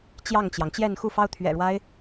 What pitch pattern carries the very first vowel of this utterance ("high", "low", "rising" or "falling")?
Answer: falling